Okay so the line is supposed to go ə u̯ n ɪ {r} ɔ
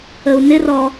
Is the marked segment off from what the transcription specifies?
no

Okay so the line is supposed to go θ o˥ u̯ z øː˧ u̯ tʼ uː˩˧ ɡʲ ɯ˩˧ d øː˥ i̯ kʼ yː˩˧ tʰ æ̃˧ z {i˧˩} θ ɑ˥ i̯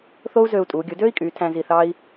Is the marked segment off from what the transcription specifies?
no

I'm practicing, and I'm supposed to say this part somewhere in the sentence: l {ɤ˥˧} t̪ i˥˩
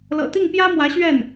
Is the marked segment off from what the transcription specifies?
yes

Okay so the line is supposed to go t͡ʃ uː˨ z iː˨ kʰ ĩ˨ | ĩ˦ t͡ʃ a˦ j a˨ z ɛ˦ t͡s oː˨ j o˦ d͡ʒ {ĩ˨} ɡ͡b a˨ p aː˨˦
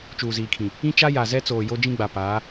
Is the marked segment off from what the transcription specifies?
yes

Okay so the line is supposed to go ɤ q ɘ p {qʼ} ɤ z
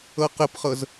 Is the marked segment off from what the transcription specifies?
yes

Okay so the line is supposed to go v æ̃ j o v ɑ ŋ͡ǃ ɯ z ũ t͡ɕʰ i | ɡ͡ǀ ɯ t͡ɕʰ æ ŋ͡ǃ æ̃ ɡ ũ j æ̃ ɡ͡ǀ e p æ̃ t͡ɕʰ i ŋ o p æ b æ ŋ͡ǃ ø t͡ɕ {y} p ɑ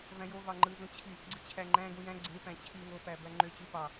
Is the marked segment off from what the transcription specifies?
no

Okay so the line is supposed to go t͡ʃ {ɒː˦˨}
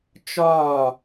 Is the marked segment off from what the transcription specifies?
no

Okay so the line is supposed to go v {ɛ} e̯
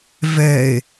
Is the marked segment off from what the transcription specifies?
no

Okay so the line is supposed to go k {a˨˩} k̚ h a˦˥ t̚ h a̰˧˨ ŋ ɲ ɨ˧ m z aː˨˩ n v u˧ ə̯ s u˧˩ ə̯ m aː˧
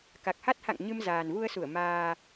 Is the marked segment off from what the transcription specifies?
no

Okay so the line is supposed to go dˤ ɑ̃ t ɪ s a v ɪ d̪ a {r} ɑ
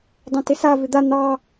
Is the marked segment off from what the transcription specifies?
yes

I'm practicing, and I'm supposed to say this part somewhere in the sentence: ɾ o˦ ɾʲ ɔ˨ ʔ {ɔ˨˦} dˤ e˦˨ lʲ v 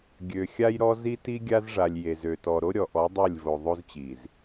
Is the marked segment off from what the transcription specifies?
no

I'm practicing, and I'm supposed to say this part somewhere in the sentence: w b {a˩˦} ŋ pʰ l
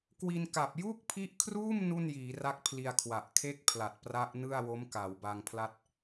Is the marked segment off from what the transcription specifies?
yes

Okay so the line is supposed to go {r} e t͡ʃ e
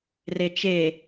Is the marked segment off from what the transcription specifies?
no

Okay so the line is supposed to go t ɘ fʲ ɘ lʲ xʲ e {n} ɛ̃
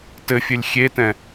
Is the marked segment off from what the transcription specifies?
yes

